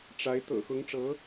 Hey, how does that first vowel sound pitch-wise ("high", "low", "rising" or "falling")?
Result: rising